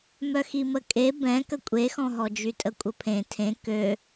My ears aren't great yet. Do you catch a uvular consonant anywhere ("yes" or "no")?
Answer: no